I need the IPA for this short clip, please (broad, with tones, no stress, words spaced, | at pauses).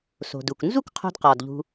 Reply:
so̤˩du˩k nzu˥k qʰo̤˧dqɒ˩d ʎṳ˧